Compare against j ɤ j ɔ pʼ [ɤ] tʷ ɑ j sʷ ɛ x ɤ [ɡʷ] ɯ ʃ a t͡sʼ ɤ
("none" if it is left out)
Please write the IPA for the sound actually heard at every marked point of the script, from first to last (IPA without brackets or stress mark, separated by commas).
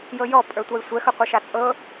ə˞, qʷ